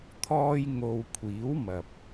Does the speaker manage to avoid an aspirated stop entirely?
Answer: no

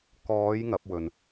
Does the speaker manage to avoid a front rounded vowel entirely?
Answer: yes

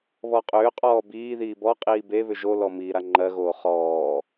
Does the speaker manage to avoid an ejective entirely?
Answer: no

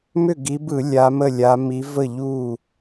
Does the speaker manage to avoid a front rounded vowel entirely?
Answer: no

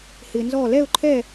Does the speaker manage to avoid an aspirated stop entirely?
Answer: no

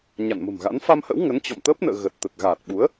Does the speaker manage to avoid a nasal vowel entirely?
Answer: yes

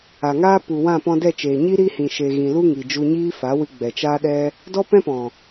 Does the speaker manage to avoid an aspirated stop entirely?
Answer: yes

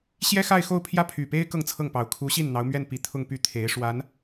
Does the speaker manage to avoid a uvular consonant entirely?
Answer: yes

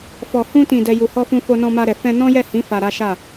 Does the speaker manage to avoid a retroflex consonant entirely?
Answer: yes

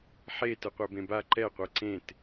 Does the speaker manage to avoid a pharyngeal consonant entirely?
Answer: no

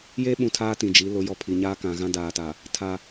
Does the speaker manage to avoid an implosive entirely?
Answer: no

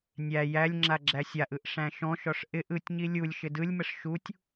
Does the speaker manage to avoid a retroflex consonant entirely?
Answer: no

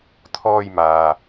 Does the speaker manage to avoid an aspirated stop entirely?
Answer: no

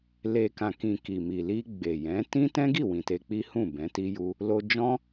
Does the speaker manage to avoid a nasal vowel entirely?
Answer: no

